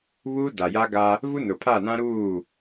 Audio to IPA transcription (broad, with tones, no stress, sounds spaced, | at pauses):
β uː˦ d a˨ j a˦ ɡ a˦ | v u˦ n ʊ˨ pʰ a˦˨ n ã˦ ɾ uː˦˨